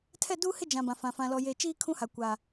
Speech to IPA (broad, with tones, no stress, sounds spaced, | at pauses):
tʰ ɛ˦˨ d uː˦ h ɪ˦ d͡ʒ ã˨ b ã˨ f ã˨ f ã˨ l ɔ˨ j e˨ t͡ʃ iː˦ kʰ ũ˦ h a˨ kʷ a˨